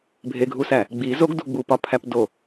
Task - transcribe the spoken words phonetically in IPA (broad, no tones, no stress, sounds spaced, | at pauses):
bʱ e ɡʱ u s æ | ɡ͡b i z o ɡ d u ɡ͡b u p ɒ pʰ æ p d o